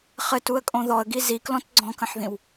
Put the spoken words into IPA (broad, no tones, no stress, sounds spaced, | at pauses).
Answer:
χ ɘ t u ə̯ kʼ õ ð ɔ ə̯ ɡ i z i k l ɔ̃ t ɡ͡ǀ ɔ̃ k ə̃ ħ ð ĩ w